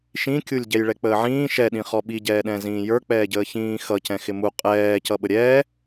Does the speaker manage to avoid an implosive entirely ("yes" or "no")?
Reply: no